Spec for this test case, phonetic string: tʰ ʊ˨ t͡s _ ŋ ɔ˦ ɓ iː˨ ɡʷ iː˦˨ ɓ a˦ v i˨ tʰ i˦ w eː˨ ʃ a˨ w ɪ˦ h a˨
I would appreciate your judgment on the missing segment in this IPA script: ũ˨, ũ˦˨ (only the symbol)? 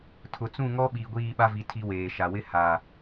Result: ũ˦˨